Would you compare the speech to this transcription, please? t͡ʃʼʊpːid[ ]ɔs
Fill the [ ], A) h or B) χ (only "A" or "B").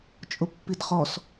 B